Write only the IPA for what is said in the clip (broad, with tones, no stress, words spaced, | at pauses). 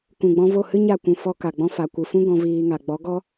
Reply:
kũ˨ɡ͡bɔ̃˧vo˦˨ hɨ˦ɲa˦˨kʷũ˨fɔ˧ ka˨ɡ͡bɔ̃˧ fa˨kʷɨ˨fũ˦ ɡɔ̃˧ viː˧ŋa˨ ɡ͡bɔ˨˦ɡɔ˦